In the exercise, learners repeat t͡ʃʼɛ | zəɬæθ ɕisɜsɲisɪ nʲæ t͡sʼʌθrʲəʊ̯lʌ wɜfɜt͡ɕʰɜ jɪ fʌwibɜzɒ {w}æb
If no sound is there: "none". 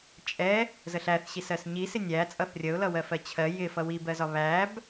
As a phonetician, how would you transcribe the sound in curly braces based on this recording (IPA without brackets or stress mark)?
β